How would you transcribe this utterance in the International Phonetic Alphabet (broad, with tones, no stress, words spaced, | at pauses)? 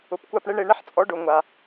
ʊ˨pkʷa˧pɳe˦ɳe˧ ɳɛ˦ħt͡sʼɔ˨˦ ɖʊ˨ ŋʷa˨